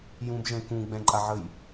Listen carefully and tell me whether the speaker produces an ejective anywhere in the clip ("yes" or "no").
yes